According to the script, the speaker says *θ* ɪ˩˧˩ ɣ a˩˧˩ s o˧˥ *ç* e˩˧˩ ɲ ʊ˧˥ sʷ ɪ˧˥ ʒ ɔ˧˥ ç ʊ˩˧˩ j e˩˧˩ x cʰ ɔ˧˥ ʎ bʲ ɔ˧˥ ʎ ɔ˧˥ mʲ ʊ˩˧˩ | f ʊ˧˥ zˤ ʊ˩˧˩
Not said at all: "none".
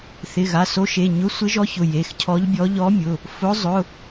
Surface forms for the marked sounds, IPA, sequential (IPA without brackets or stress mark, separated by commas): θ, ʃ